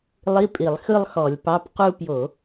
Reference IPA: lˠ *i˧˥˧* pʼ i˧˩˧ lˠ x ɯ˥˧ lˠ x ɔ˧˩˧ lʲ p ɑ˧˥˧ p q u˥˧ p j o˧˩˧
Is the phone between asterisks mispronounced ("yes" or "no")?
no